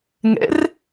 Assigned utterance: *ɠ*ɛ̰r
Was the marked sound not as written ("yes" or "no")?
yes